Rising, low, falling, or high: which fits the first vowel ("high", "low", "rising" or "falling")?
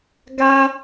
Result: high